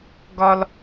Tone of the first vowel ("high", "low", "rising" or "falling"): high